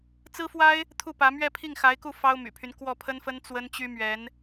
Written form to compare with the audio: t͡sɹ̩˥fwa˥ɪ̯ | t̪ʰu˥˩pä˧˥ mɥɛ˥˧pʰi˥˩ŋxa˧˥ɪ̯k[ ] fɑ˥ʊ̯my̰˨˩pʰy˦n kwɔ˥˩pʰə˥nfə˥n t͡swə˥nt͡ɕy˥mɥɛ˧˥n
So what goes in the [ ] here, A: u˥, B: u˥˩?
B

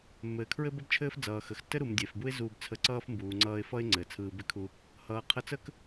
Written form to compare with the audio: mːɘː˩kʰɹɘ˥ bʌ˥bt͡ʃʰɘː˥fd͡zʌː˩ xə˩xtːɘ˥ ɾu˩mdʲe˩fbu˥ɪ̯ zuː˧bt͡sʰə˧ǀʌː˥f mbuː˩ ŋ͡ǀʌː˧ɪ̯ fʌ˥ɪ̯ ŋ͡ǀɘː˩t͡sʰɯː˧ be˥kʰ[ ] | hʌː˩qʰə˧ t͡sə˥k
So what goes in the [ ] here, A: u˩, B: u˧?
B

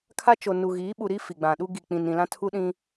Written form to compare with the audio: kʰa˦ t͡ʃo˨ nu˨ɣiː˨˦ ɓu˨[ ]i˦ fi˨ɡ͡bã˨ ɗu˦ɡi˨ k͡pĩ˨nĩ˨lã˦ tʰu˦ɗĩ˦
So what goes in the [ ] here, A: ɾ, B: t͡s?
A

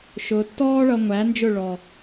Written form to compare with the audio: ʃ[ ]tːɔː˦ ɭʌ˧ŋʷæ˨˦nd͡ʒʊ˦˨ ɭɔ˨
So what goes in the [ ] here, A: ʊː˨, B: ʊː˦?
A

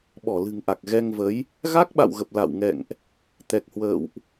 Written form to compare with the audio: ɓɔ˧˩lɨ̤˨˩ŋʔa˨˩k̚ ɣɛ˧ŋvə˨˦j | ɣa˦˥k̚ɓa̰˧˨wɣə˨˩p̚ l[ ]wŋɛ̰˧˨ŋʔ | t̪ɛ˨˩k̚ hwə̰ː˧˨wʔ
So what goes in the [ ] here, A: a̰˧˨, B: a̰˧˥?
A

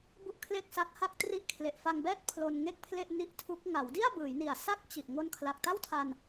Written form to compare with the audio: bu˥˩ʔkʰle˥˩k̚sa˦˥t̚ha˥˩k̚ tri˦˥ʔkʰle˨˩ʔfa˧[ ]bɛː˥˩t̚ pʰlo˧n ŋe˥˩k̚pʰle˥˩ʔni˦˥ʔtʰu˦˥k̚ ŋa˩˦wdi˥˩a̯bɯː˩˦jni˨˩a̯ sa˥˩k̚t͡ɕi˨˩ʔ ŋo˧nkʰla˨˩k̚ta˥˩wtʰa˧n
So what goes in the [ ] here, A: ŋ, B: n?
A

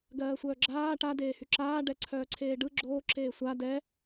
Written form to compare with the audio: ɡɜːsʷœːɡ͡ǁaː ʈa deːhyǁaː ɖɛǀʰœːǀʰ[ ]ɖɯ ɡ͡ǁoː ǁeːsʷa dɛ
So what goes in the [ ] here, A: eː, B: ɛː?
A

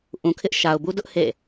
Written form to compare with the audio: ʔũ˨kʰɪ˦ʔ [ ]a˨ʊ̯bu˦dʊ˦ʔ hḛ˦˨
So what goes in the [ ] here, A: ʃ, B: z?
A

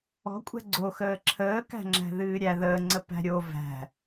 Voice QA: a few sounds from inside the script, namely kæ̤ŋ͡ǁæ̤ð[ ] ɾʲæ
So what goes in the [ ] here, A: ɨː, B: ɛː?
A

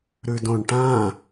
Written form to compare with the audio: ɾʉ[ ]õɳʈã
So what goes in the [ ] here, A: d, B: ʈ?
A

